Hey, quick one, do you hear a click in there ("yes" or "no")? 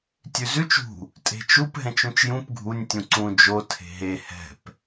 yes